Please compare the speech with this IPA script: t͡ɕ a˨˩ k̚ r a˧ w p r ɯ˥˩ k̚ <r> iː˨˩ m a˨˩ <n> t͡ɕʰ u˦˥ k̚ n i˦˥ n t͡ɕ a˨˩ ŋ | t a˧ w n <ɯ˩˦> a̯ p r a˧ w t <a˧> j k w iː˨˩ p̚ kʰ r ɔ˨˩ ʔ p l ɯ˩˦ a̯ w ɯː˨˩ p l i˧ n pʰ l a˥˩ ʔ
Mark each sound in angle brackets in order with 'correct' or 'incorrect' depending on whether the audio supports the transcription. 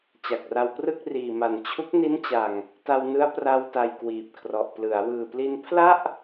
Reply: correct, correct, incorrect: ɯ˦˥, incorrect: a˨˩

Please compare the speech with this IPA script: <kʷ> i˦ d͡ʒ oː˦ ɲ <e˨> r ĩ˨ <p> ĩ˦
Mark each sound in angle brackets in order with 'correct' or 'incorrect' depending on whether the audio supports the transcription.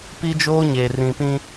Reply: incorrect: p, correct, correct

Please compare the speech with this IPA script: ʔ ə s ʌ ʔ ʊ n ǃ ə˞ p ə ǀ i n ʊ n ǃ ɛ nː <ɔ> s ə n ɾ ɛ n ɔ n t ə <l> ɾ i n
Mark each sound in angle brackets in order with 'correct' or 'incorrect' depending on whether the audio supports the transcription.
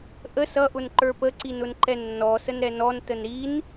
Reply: correct, incorrect: n

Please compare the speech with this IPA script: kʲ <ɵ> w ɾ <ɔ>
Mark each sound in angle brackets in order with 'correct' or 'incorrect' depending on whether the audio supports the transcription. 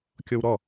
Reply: incorrect: o, correct

